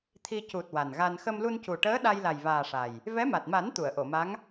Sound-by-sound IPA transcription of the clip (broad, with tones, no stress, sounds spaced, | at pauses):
t̪ʰ i˧ c u˨˩ t̚ w a˨˩ n ɣ a˧ n x ə˧ m l u˧ n c u˨˩ ʈ əː˧˥ ɗ a˧ j l a˨˩ j v aː˨˩ ʂ a˨˩ j | v ɛ˧˥ m a˨˩ t̚ m a˨˩˦ n t̪ u˨˩˨ ə̯ ʔ o˨˩˨ m a˧˥ ŋ